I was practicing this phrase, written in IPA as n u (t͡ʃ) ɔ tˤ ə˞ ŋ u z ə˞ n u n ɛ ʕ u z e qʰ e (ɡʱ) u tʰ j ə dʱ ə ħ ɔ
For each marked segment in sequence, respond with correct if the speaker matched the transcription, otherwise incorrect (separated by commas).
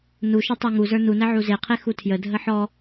incorrect, incorrect